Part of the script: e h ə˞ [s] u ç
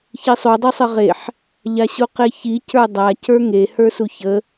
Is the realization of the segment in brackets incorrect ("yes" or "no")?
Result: no